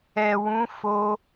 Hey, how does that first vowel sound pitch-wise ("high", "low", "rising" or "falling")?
low